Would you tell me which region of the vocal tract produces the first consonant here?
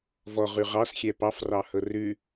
lips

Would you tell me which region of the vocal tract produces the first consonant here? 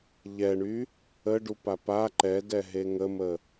palate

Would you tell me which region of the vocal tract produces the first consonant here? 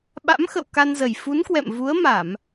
lips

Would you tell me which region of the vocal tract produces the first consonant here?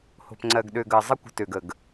throat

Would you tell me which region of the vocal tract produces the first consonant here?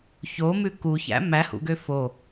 palate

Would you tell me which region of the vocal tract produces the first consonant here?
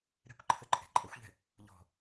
tongue tip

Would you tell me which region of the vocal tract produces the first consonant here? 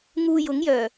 velum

